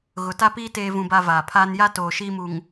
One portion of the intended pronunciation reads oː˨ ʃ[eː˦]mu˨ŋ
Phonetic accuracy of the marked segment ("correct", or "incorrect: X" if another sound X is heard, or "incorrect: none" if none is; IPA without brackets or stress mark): incorrect: iː˦